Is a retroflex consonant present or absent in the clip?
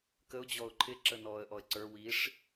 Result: present